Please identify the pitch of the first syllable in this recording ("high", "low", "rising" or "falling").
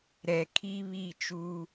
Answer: low